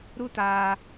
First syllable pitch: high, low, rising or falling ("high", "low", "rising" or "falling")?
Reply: high